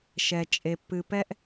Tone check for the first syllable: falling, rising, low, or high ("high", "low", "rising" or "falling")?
low